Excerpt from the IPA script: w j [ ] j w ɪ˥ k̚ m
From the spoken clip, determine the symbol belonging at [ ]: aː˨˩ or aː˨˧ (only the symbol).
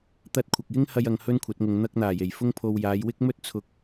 aː˨˧